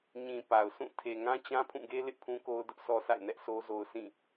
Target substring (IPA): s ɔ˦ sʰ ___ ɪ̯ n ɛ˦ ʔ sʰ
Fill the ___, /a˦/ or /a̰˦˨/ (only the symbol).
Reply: a̰˦˨